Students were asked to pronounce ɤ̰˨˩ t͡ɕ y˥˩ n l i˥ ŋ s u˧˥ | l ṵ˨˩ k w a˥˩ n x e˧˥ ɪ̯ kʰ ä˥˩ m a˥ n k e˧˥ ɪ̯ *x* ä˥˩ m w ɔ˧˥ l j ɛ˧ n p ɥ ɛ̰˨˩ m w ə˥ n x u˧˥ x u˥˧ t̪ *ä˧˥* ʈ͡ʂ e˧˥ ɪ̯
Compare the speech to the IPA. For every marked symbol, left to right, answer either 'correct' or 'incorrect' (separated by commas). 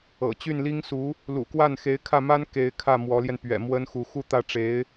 incorrect, incorrect